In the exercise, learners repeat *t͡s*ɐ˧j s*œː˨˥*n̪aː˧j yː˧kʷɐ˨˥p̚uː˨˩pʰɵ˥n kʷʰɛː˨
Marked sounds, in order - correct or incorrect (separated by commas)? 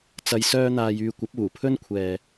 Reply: correct, incorrect